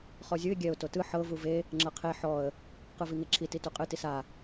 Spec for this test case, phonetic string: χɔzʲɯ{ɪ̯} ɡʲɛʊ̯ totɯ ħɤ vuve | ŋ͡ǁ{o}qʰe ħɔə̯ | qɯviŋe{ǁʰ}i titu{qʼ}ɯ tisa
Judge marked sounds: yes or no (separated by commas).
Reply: yes, no, yes, yes